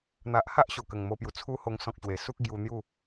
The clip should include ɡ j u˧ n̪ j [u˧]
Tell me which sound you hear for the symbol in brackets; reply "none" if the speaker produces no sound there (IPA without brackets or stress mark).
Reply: u˥˧